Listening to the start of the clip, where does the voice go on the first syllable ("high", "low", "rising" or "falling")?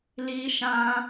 high